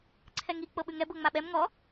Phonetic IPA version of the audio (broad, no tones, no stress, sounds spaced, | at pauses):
ǀʰ ɛ ŋ i k͡p ɤ ɓ ʉ ŋ ɛ b ɤ ŋ͡m a ɓ ɛ m ŋ ɔ